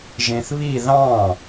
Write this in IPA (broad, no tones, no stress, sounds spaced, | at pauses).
ʒ ẽ θ β i ð ɑ̃